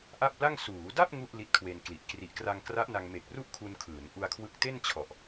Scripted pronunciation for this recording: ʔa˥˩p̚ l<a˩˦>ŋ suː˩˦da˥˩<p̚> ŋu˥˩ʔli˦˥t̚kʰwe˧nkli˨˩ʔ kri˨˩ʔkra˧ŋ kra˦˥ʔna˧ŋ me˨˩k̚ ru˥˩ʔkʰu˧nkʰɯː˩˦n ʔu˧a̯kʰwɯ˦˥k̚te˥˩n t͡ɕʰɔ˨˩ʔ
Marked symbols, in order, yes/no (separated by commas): no, yes